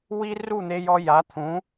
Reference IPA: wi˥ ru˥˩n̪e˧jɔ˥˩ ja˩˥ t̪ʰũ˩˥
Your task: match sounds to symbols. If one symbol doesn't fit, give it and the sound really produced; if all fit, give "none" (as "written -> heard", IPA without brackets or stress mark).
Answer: ɔ˥˩ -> ɔ˧